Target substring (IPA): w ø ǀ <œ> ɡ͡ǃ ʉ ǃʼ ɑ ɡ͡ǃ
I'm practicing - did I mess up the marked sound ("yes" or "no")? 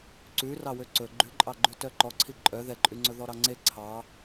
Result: yes